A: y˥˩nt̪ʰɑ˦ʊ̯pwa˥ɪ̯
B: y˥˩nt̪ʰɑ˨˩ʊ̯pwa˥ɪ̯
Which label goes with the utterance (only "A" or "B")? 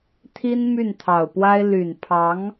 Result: B